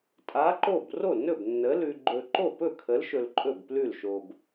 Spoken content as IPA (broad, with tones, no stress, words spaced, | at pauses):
tʼa˨˥ǃo˥˩b ro˥˩nɵ˥˩b nːə˨˥lʉ˧ɡ͡ǃɵ˧ ǃo˥˩pɵ˥˩kʰə˨˥l ʃɵ˧lǃʼɵ˥˩bplʉ˥˩lʃo˧b